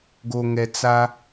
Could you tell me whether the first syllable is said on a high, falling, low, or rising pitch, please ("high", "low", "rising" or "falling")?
low